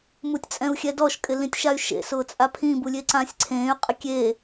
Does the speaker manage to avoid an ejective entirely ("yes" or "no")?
no